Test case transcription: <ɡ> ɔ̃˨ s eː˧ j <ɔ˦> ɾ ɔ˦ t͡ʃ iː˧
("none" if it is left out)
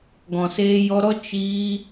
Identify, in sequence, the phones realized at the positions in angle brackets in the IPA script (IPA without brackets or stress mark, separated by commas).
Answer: ɡ, ɔ˧